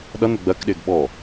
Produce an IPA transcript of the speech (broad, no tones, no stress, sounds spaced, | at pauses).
ɗ ʌ n ʊ ɡ͡b ɜ k ɗ ɪː ɡ ɓ ɔ